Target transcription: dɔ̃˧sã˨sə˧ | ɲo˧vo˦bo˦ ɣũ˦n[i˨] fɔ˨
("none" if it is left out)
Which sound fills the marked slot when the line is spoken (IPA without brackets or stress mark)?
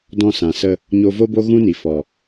i˨